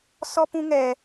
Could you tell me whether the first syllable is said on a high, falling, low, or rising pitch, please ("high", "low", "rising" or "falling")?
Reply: high